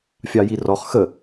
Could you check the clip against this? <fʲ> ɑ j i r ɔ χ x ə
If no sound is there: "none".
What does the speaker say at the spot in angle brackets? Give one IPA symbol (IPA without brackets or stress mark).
fʲ